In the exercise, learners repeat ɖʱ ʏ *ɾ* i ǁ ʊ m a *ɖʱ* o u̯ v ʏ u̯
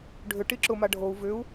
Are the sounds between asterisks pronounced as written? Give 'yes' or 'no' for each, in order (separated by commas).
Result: no, yes